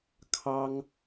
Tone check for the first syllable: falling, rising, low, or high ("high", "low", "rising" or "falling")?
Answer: high